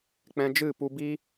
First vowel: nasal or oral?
nasal